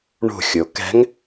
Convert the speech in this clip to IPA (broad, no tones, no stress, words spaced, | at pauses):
ɳṳxʲo kɛ̤ŋ